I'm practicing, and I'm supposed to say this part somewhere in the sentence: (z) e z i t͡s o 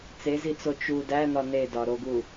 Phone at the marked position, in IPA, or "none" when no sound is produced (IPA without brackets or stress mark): t͡s